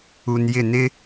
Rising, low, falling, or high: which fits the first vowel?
low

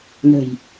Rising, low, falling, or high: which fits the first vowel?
low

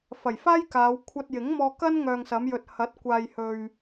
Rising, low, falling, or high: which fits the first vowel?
low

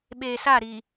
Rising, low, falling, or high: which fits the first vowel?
low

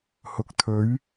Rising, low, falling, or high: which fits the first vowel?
rising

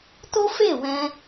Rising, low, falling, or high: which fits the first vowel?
high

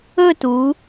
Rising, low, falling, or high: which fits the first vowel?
falling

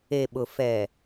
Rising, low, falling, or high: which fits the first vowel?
low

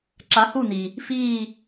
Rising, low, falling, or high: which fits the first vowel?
rising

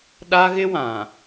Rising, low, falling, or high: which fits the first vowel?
high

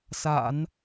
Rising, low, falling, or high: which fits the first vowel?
low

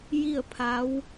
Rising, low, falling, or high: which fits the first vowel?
falling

